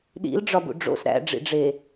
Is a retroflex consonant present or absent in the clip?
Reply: present